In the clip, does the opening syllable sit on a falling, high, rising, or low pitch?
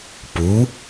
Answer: rising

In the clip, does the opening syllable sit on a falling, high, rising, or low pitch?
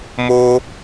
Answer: high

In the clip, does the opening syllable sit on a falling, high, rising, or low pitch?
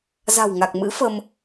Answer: low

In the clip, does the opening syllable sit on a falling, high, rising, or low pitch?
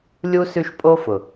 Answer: high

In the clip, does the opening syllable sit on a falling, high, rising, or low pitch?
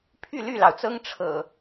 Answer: falling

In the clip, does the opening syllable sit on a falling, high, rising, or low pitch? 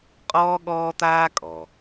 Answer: high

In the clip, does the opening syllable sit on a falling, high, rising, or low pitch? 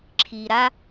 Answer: low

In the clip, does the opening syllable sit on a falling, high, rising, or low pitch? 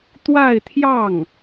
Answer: falling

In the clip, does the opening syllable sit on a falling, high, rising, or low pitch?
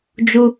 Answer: high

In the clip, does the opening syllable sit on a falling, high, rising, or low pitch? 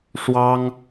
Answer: high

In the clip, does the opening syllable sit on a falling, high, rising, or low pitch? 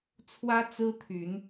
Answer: high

